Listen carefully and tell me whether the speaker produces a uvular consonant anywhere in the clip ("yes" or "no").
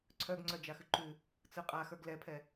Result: yes